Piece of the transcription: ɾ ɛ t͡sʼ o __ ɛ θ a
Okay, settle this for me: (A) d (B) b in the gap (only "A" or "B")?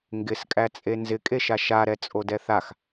A